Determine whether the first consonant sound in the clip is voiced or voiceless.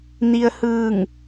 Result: voiced